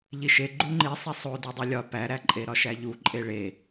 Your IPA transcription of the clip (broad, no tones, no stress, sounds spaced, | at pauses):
ʎ i ʃ e ɡ͡ǃ u ŋ͡ǃ i sˤ e sˤ o d u dˤ o lʲ ɒ p æ ɾ æ ǃʼ e ɾ ɒ ʃ æ ʎ u ǃʼ e ɭ e